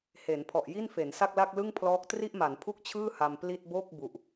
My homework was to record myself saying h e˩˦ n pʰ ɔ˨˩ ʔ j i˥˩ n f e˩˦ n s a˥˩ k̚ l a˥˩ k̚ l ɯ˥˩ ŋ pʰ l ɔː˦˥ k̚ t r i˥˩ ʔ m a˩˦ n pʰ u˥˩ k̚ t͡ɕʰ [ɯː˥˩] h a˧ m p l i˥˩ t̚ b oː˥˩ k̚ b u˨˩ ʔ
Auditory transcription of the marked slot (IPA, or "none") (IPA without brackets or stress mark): ɯː˥˩